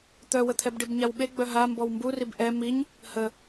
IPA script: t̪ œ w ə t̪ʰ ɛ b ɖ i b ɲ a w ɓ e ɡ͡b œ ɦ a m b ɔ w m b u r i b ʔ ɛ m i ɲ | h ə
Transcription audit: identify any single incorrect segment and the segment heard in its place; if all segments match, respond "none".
none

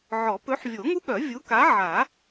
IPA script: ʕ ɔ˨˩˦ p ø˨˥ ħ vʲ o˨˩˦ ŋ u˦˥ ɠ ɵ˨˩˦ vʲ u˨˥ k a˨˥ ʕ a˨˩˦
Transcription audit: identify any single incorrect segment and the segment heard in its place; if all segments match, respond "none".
ɵ˨˩˦ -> œ˨˩˦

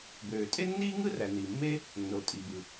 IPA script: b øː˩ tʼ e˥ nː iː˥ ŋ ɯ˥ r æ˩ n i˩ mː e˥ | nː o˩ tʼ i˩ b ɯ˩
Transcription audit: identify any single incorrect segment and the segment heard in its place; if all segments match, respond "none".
none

